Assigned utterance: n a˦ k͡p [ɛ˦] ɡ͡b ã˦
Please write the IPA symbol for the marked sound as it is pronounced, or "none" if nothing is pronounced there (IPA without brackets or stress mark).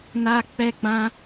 ɛ˦